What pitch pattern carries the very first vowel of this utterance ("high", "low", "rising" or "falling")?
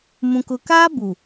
low